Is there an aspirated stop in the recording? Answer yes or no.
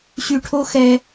yes